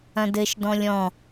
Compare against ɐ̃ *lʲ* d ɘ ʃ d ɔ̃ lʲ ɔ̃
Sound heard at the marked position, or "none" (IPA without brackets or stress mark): none